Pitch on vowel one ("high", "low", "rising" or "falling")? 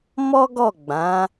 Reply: high